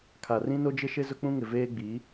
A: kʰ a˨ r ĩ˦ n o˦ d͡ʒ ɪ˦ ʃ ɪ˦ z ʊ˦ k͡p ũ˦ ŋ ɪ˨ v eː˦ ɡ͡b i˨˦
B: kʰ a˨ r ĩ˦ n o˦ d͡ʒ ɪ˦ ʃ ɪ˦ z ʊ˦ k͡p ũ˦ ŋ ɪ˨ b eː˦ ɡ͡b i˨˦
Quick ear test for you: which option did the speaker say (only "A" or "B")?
A